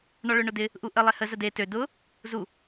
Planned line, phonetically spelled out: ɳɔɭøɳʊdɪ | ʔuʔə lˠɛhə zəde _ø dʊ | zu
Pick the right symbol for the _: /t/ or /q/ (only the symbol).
t